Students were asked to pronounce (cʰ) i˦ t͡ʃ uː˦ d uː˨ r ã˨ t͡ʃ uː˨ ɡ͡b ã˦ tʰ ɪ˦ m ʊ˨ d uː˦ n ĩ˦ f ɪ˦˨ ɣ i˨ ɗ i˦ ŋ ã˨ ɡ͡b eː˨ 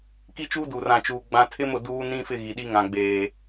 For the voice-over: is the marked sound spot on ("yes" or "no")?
no